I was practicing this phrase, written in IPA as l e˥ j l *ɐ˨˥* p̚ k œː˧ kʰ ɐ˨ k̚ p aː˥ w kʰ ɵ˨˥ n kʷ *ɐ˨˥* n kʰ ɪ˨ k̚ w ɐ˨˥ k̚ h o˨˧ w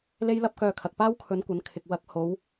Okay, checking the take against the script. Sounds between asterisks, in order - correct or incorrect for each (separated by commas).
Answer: incorrect, incorrect